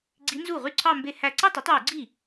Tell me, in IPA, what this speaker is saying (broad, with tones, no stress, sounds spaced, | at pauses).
ɡ͡ǀ i˧˥ n z u˥˩ ʁ y˥˩ ǀʰ ɑ˥˧ m b e˥˧ h æ˥˧ ǀ e˥˧ tˤ i˩˥ tˤ w y˧˩˧ ɡ͡ǀ i˥˩